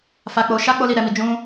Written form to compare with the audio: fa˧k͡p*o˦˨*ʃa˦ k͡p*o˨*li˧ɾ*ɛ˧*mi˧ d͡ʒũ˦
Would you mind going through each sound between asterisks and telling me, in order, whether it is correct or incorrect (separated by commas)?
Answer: incorrect, incorrect, correct